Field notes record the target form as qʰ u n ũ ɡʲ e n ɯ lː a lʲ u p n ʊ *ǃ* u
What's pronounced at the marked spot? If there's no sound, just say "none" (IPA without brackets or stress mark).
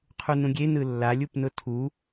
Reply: tʰ